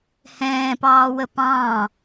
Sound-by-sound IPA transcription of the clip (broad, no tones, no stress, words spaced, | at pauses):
hɛ̃ːpɑːwə pɑ̃ː